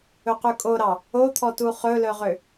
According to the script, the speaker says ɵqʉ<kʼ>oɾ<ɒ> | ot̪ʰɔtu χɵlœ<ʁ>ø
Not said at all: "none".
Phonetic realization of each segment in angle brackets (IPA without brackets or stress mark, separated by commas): kʼ, ɑ, ʁ